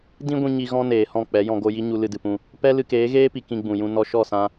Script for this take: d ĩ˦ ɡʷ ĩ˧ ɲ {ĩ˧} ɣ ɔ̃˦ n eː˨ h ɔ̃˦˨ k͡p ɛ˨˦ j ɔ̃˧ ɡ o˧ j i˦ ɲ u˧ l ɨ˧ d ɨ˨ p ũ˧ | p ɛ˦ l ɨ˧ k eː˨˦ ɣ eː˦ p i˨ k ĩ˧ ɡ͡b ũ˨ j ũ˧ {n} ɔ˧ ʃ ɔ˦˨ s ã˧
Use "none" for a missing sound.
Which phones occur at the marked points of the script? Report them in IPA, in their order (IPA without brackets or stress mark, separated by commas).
i˧, n